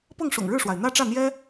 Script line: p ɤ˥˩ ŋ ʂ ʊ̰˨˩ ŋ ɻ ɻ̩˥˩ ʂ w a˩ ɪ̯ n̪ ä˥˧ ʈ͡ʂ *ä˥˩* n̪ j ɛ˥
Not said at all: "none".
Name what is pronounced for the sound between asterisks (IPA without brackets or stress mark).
ä˥˩